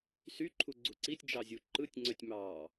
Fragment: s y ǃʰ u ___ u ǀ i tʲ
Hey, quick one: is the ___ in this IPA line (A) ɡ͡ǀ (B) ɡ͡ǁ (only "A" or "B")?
A